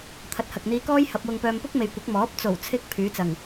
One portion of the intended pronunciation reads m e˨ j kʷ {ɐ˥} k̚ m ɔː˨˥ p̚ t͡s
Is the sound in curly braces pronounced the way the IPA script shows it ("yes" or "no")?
no